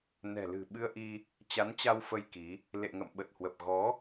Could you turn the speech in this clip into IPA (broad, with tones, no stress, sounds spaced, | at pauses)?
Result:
n ɛ̤˨˩ l ɨ̤˨˩ ɓ ɨ˧ ə̯ ʔ i˧ | t͡ɕ a˨˦ n t͡ɕ a˧ w f ə˧ j k i˨˦ | l ḛ˧˨ ŋ ə̰˧˨ m ɓ ə˨˩ t̚ h w ə˨˩ p̚ ɣ ɔ˨˦